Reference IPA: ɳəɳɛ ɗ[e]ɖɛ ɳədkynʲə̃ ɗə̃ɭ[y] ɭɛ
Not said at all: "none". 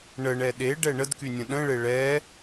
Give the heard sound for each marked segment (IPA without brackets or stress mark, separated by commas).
e, e